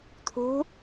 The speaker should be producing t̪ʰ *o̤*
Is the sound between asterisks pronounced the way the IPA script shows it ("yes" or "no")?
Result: no